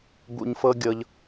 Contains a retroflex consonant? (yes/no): no